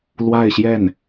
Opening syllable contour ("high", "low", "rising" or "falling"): falling